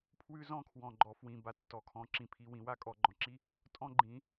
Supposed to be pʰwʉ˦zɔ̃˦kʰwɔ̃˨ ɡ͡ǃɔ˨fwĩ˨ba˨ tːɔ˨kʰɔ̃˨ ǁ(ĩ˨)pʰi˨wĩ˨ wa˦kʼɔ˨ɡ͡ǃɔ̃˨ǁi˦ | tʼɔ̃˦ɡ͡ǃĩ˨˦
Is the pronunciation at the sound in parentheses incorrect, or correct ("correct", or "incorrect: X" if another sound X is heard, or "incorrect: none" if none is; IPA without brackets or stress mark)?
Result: correct